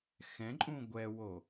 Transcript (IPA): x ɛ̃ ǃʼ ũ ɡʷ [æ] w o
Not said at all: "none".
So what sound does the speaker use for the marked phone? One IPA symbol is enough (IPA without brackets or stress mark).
ɛ